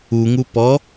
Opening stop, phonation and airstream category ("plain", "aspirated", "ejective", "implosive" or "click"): plain